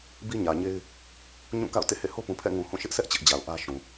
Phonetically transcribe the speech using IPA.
bi˦ɲä˨ɲe˦ɪ̯ | ɲũ˦˨ka̰˦˨ʊ̯ tḛ˦˨hḛ˦˨ho˦pũ˨ pʰɛ̰˦˨ŋũ˨ hũ˦˨ʃɪ˦ʔsɛ˦ʔ t͡ɕɪ˦ʔd͡ʑa˨ʊ̯ ʔä˦ʃũ˨

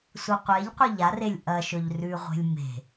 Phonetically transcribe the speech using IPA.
suqʷeʎqʷɨ ʎarelʲ ʔɐʃɵʎ rʉʁʷe̤lʲ me̤

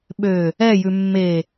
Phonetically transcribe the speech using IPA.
ɓø | ɛ jʉmːe

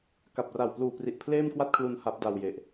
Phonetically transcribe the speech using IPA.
ka˨˩p̚ra˨˩wpluː˨˩pri˨˩ʔ pʰleː˥˩mkwa˥˩t̚kʰlu˧n ha˦˥p̚da˧wje˨˩ʔ

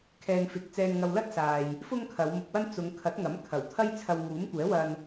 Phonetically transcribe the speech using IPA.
kʰɛː˨ŋ fɪ˨k̚t͡sɛː˧nŋɐ˧w lɐ˥t̚saː˨j | fʊ˥ŋkʰɐ˨˧wmʊ˧k̚wɐ˥n t͡sʊ˨˧ŋkʰɐ˨˥t̚ŋɐ˨˥m kʰɐ˨˩wt̪ʰɐ˥jt͡sʰɐ˧w ŋuː˨˥mkʷɛː˨˥wɐ˧n

